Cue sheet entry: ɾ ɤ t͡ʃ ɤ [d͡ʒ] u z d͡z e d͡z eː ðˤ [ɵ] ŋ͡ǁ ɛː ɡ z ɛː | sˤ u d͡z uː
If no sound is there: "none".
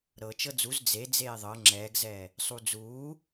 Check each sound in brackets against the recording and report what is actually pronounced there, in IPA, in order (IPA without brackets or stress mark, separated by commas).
d͡z, ɤ